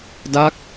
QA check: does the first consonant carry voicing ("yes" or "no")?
yes